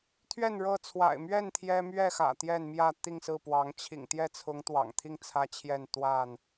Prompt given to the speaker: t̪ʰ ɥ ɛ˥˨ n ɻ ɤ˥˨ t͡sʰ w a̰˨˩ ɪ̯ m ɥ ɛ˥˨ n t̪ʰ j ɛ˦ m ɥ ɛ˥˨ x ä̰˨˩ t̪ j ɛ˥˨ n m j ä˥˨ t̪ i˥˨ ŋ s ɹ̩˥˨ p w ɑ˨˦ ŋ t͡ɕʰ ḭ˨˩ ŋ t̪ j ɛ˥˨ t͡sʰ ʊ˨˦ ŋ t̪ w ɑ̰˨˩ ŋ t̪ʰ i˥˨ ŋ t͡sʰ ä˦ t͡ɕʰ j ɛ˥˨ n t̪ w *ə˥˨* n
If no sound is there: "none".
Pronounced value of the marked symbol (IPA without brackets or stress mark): a˥˨